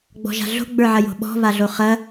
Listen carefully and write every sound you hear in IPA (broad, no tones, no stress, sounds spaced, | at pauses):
ɡ͡b ɔ̤ ʒ a̤ ɮ o̤ ɡ͡b ə˞ ʕ ɐ j o̤ ɓ ɔ̤ β a ɮ o χ ɐ